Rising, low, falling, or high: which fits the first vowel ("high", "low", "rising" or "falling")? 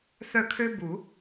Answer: falling